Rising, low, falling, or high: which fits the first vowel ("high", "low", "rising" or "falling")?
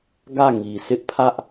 falling